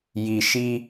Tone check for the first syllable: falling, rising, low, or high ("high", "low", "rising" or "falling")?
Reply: low